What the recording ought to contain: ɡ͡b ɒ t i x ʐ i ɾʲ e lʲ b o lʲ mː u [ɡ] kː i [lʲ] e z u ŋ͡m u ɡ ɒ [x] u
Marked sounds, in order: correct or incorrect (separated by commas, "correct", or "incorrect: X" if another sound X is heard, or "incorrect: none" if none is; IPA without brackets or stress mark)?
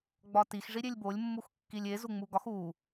incorrect: x, correct, correct